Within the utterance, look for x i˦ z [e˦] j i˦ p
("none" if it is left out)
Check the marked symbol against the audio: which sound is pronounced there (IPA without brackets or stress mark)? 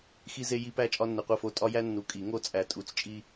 e˦